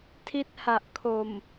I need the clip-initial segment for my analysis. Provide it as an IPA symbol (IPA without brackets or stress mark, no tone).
tʰ